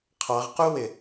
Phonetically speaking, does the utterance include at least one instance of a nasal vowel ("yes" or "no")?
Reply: no